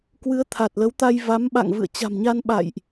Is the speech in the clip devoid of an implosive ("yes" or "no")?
no